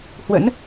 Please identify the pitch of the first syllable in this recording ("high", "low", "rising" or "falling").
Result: rising